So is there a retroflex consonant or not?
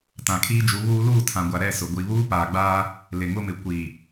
no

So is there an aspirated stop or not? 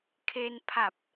yes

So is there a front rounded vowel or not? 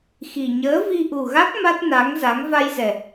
no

